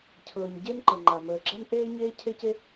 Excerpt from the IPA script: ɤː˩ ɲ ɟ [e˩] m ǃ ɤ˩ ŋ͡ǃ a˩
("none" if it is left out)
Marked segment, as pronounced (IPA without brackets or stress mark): e˥